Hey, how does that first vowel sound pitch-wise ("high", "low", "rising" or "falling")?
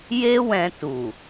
high